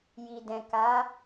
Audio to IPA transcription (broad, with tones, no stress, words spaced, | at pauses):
ji˨dɛ̃˨ ka˨˦